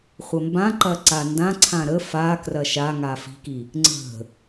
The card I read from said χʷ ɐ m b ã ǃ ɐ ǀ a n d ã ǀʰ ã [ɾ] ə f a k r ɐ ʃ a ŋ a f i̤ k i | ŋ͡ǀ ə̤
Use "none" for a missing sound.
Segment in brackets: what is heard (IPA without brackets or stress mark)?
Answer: ɾ